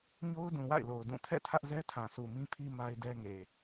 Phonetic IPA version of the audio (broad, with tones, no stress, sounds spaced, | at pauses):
ɲ o˦ ʊ̯ d ũ˨ w a̰˦˨ ɪ̯ l o˨ ʊ̯ d ũ˦˨ tʰ ɛ̰˦˨ tʰ ä˦ ʔ z ɛ˦ tʰ ã˨ s u˨ m ĩ˦ pʰ i˦ m a˦ ɪ̯ d ɛ˦ ŋ e˨